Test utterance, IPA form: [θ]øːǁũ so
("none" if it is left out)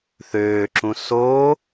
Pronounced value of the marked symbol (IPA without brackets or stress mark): θ